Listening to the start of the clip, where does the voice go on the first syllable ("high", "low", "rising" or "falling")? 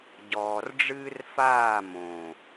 low